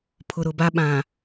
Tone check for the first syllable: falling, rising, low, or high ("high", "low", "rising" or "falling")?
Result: low